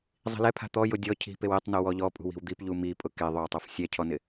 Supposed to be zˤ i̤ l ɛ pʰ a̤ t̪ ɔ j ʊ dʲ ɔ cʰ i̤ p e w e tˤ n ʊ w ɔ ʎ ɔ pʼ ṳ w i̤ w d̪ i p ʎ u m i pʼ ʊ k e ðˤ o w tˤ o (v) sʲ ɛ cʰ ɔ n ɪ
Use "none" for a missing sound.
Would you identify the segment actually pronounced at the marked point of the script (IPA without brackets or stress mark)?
f